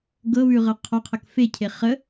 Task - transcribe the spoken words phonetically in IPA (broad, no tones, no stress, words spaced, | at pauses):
ɡɤβʉʁɤ qʰɒqʰək fecʰe χə